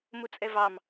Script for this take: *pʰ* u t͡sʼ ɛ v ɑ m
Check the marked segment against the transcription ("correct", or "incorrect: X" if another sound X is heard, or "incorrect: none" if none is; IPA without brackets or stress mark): incorrect: m